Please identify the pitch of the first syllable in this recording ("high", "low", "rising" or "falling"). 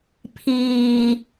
low